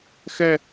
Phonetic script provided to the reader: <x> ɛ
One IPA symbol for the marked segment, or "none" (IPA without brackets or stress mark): x